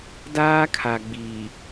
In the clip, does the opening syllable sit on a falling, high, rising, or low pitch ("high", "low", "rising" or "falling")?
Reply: high